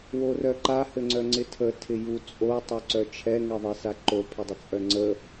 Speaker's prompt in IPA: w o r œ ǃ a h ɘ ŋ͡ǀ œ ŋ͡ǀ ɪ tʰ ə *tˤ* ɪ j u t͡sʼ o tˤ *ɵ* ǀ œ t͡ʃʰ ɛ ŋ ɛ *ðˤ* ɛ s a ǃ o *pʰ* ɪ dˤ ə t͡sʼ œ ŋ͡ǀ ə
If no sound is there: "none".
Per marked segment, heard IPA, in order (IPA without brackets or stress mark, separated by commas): tʰ, œ, ðˤ, pʰ